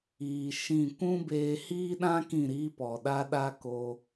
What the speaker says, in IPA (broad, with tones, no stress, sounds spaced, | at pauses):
iː˧ ʃ ĩ˦˨ kʷ ũ˦ b eː˧ h iː˦ ɗ ã˦ k ĩ˦˨ ɾ iː˦ p ɔ˨ ɗ a˦ ɗ a˦ k oː˧